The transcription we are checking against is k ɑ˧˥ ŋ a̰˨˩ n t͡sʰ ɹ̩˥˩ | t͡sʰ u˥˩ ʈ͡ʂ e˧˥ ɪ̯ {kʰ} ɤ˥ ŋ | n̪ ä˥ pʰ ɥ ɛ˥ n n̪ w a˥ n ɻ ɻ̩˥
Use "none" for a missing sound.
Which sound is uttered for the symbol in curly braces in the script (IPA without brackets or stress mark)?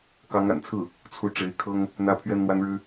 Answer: kʰ